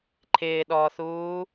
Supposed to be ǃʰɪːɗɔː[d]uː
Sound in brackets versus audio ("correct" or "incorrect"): incorrect